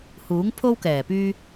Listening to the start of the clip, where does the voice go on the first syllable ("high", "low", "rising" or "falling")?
rising